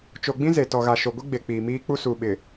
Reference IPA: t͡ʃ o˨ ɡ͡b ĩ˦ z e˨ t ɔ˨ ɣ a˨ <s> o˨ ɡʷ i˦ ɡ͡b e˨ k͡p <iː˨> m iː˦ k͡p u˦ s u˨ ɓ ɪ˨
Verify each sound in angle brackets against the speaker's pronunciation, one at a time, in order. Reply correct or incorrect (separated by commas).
incorrect, correct